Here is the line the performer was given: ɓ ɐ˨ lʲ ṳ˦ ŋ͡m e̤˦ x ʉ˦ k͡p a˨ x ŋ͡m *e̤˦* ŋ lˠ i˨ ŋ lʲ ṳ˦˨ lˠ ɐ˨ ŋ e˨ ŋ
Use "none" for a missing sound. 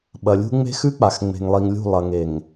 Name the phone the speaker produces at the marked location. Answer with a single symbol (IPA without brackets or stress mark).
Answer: e̤˨